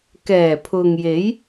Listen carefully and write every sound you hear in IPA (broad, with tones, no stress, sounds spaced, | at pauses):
k ɛː˨˩ pʰ ʊ˨ ŋ j e˨˥ j